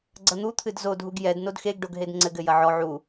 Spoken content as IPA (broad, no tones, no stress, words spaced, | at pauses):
ɡ͡ǀɐn̪ut̪ʰɨd zodʱuɡ jɛd nodxeɡɖoɡ ɦedŋ͡ǀɘɡɘ jɐʕɔ ʕu